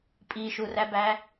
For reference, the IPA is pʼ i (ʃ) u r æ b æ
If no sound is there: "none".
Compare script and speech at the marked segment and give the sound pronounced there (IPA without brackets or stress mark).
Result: ʃ